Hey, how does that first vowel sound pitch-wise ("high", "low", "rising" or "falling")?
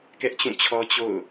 high